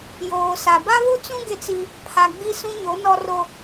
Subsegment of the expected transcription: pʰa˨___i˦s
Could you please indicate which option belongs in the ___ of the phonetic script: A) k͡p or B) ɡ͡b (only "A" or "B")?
B